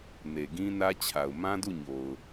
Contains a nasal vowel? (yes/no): yes